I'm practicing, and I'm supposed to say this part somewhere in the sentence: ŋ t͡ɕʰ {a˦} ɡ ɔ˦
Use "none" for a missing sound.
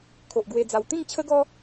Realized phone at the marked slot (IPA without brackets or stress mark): ə˦